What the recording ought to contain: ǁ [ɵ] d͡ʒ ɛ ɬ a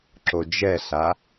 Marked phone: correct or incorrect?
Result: incorrect